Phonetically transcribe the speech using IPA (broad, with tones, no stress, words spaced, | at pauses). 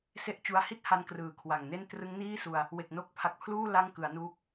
se˥˩ʔt͡ɕu˦˥a̯ hi˥˩t̚ha˧n krɯː˨˩kʰwa˨˩ŋne˥˩n trɯ˦˥ŋniː˥˩su˧a̯ | we˨˩k̚no˦˥k̚pʰa˨˩k̚pʰluː˥˩ la˥˩ŋkɯ˩˦a̯nuː˦˥k̚